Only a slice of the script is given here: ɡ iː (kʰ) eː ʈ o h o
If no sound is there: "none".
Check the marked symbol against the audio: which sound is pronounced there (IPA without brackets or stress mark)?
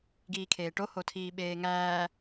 kʰ